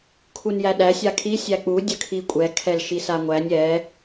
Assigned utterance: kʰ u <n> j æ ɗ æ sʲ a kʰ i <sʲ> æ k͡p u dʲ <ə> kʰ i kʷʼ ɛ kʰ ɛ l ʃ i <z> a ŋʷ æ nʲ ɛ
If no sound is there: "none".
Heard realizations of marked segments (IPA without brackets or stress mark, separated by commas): n, sʲ, ə, s